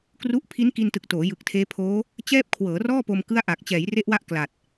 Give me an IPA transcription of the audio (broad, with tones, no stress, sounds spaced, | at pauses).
k r u˥˩ ʔ pʰ i˦˥ n k i˧ n t ɯ˨˩ k̚ t oː˩˦ j ɯ˨˩ k̚ tʰ eː˦˥ pʰ oː˦˥ | t͡ɕ ɛː˥˩ p̚ kʰ w ɤː˩˦ r ɔː˥˩ p o˧ m k ɯ˥˩ a̯ ʔ a˨˩ k̚ t͡ɕ ɛː˩˦ j r e˦˥ ʔ w a˦˥ ʔ k l a˨˩ t̚